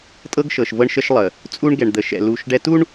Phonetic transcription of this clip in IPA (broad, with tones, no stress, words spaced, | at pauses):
tʼɤ˦ɡʃɤ˨ʃ vɤ˦ɳʃə˦ʃlˠə˨ | t͡sʼu˦ɳ ɡɛ˨ɳd̪ə˨ʃɛ̰˨ lu˨ʃ ɖɛ˦ tu˦ɳ